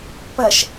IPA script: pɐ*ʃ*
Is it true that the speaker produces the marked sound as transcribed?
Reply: yes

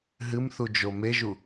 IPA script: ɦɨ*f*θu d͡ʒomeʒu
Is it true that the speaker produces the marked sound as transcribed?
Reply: no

